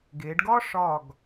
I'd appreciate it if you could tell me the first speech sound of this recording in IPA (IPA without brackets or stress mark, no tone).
ɡ